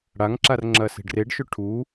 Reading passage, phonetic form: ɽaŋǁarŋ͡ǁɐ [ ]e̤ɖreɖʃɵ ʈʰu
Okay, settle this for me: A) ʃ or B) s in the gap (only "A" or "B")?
B